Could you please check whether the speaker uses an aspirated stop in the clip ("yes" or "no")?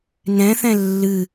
no